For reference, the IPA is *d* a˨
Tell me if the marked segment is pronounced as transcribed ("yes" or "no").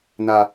no